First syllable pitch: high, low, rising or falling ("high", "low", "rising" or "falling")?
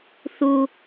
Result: high